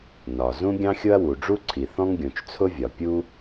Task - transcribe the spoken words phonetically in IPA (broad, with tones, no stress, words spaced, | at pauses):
nɒ˩ zũ˥ɡʲɑ̃˥xʲʊ˥ɐ̯ wu˩ɖ͡ʐu˥ǀʰi˩ θɔ̃˥ŋɡʲũ˩t͡ʃt͡sʰʊ˥vʲɒ˩ pʲu˥